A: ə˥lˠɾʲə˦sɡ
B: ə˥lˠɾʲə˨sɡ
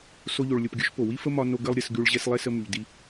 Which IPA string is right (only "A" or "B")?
A